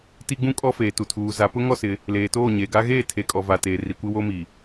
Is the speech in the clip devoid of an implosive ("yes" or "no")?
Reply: yes